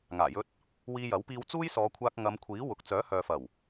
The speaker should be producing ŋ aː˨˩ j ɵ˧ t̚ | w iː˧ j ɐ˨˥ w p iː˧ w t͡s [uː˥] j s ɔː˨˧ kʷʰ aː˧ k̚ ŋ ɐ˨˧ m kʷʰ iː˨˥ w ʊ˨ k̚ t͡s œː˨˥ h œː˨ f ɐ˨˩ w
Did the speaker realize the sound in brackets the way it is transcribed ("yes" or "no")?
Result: yes